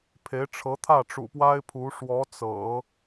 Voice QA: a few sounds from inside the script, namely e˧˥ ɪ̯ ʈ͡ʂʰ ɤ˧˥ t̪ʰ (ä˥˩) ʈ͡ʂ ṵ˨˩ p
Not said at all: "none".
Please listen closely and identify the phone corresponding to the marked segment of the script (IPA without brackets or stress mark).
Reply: ä˥˩